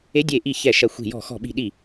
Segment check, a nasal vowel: absent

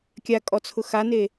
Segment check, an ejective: present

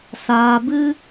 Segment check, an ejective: absent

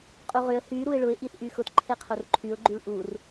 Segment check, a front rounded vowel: present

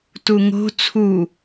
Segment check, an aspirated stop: present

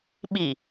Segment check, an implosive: present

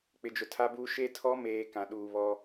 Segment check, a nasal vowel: present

